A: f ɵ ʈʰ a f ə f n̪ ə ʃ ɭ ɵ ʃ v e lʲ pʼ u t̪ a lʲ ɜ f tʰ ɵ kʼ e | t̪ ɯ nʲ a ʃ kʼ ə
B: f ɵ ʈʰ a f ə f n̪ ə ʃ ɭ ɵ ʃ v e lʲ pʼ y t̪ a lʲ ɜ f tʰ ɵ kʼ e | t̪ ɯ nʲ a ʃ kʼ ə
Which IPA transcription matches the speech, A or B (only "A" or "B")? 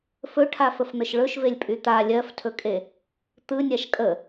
B